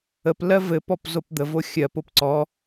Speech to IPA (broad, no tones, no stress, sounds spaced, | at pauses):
ə p l ɜ v ɘ p ɔ p z o p d̪ ə v o xʲ ɜ p o p ǀ ɔ